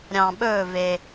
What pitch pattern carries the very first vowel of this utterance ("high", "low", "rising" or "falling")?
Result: low